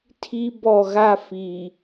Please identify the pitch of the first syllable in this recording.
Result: high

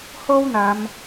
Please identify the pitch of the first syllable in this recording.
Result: high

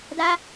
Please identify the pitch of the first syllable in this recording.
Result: high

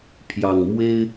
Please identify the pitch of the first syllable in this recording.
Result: low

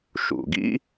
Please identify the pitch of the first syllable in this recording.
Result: low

